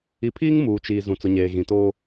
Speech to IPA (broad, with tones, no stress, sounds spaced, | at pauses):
i˨ pʰ iː˦ ŋ m uː˨ t͡ʃ iː˨ z ũ˨ t͡s ʊ˨ ɲ eː˨ ɣ ĩ˨ t oː˦